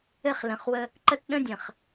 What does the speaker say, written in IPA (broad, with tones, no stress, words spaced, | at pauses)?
ɘ˦χlə̃˨χwə˦ | ǃə˦tɗə̃˦dʲə̃˨χ